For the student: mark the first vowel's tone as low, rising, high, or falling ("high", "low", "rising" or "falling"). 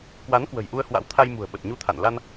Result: rising